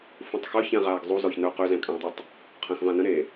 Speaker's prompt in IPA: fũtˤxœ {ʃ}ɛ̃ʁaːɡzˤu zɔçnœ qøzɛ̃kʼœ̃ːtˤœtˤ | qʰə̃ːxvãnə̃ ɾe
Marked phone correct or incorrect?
incorrect